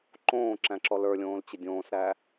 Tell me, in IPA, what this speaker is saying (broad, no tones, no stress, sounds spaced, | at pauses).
ǃ õː ǁ æ̃ ǁ ɔ l ə˞ lʲ õː l t͡ɕ ə dʲ õː s ɾ æ